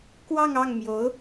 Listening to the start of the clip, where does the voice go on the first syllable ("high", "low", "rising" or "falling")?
falling